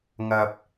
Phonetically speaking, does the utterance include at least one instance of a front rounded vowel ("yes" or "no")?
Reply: no